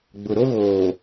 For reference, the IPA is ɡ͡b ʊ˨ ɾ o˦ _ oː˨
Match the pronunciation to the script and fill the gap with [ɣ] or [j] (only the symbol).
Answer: ɣ